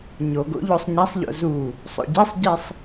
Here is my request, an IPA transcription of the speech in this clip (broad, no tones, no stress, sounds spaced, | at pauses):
ɲ o ɡ o̰ ʎ o sˤ ɲ æ sˤ ʎ o̰ z u | sˤ o̰ ɟ e sˤ ɟ i sˤ